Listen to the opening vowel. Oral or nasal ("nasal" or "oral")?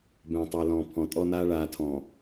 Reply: nasal